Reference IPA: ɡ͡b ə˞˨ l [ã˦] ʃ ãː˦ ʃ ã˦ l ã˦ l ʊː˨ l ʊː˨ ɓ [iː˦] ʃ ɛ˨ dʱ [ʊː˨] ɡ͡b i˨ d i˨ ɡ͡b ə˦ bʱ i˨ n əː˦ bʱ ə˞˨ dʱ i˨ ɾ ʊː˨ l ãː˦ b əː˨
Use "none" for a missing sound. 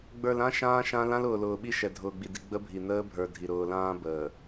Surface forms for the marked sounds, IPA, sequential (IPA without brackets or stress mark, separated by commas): ã˦, i˦, ʊː˨